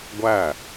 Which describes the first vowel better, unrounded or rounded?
unrounded